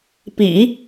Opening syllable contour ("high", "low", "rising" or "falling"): low